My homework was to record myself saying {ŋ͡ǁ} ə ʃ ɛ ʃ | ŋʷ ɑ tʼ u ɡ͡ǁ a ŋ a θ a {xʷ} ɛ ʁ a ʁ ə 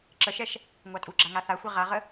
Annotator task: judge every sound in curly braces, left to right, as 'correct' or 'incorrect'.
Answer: incorrect: ǁ, correct

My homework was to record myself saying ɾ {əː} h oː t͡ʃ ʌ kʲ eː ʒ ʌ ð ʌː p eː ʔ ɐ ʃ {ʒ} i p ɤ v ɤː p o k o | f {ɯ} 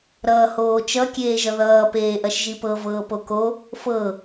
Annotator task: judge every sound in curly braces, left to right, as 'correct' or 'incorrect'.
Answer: incorrect: ʌː, correct, incorrect: ɤ

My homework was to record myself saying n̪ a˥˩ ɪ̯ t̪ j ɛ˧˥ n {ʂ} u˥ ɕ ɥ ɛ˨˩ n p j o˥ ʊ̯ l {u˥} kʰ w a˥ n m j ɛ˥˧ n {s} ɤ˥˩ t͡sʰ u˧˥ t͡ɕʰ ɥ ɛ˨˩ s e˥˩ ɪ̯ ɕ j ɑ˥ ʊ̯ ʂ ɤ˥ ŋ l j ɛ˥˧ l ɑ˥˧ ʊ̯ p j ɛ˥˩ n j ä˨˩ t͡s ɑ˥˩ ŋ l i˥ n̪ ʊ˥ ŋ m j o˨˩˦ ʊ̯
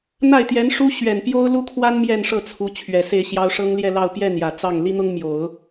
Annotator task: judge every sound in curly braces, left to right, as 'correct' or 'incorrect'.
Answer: correct, correct, incorrect: ʂ

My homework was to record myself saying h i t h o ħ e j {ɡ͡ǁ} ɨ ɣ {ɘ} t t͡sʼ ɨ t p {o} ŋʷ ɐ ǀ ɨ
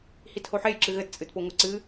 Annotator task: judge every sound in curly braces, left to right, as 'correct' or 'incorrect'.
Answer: incorrect: ǁ, correct, correct

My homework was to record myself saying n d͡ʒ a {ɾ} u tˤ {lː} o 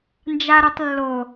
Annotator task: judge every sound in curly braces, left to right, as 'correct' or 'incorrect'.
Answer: correct, correct

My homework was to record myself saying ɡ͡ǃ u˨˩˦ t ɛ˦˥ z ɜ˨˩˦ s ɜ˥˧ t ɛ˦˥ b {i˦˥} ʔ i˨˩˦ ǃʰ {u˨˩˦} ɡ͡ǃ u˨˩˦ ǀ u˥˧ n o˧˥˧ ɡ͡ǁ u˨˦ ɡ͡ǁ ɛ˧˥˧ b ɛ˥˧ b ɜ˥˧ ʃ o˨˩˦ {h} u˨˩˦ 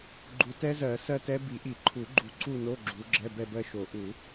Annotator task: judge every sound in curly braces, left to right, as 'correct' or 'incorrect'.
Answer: incorrect: i˨˩˦, correct, incorrect: ʔ

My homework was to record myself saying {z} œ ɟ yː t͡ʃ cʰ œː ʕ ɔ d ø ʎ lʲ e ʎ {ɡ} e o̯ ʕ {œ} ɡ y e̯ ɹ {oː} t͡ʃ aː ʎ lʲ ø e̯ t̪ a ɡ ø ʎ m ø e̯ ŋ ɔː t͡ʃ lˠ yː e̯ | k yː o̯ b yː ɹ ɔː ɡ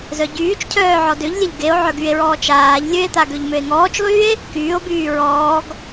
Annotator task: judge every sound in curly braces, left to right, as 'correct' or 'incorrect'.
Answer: correct, correct, correct, incorrect: ɔː

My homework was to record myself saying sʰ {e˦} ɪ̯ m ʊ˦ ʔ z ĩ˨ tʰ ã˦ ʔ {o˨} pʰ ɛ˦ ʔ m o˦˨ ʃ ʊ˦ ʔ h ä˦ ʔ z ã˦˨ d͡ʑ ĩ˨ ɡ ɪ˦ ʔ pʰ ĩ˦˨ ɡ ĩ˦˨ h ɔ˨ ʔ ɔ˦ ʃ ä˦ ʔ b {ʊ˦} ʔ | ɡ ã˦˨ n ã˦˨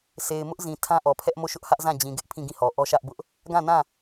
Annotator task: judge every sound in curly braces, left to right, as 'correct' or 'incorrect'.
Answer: incorrect: e˨, incorrect: ɔ˨, correct

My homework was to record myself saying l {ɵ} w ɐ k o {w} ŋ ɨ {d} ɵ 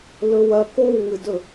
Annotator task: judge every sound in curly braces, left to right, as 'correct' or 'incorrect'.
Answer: correct, correct, correct

